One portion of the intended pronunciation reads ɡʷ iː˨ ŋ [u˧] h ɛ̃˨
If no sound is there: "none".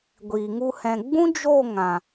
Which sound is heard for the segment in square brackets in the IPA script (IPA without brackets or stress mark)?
u˧